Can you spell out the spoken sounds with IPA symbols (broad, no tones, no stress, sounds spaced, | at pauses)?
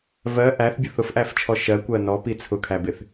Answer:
v ɜ ʔ æ θ bʲ ʊ θ ʊ f ʔ æ f t͡ʃʰ ɔ ʃ ɜ kʷ ɜ n ɔ p i t͡sʰ ʊ kʰ æ b ɪ θ